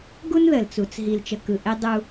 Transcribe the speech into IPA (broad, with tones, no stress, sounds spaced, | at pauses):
ɡ u˦ n ð ə˨ l t͡s u˨ t͡s ɦ i˨ l t͡ʃ ə˨ k ɯ˨ ʔ e˦ dˤ u˦